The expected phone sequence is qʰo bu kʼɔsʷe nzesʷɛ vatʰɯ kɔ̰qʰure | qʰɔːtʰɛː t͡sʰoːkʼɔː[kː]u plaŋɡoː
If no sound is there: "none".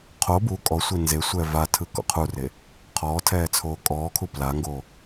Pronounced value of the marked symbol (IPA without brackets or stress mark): kʰ